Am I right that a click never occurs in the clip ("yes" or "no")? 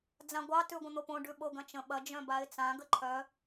no